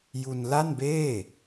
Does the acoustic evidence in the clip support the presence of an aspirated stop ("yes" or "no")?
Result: no